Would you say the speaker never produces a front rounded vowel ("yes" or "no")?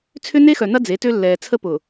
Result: no